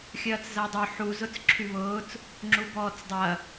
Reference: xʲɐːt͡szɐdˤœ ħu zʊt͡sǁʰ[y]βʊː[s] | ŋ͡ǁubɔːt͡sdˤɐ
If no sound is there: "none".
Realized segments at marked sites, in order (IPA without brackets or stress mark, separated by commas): y, t͡s